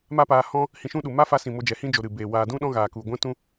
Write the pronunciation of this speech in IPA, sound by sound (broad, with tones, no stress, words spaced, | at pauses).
ma˦paː˧ hɔ̃˦ | hĩ˧ʃũ˦ ɗu˨ma˦ fa˧sĩ˨ mo˧d͡ʒɛ˨hĩ˦d͡ʒo˨ ɾɨ˨beː˨ waː˨dũ˦ ɗɔ̃˦ɣaː˨ ku˨ɡʷɛ̃˦tũ˦